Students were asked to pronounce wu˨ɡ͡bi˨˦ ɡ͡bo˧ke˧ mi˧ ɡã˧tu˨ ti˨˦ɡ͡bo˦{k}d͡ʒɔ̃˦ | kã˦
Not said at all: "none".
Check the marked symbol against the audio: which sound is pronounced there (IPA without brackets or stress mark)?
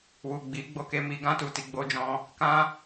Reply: none